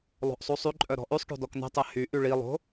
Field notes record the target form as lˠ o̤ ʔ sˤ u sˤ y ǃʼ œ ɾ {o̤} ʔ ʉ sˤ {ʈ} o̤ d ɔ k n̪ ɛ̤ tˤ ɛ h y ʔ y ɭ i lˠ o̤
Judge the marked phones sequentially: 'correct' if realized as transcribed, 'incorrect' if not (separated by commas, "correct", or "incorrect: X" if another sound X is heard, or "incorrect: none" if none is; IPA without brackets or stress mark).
incorrect: ɔ̤, correct